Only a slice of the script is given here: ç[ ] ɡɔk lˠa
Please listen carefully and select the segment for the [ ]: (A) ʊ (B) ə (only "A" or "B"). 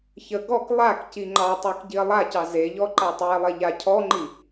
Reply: B